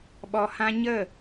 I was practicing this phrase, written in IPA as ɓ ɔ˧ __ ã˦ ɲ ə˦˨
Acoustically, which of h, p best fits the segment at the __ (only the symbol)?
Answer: h